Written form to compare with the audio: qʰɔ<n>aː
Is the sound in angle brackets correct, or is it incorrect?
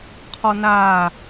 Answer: correct